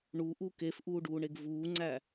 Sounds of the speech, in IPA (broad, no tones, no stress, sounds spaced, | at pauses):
ɳ u ʔ u k e f ʔ uː ɖ uː ɳ e ɡ v uː ŋ͡ǀ æ